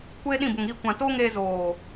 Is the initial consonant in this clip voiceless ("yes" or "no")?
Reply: yes